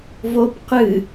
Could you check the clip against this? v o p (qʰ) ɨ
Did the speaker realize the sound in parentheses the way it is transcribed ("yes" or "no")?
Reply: no